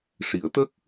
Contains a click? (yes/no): no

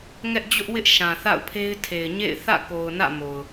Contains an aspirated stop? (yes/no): yes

